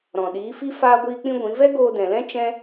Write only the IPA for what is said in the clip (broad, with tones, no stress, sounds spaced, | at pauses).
ɾ ɔ̃˨ ɗ iː˨˦ f i˦ f aː˦ ɡʷ iː˦ k͡p ĩ˦ ɡʷ ĩ˨˦ v ɛ˦ ɡ oː˧ d ɛ̃˨ l ɛ̃˦ t͡ʃ ɛ̃˦